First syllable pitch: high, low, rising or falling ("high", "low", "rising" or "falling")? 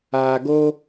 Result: low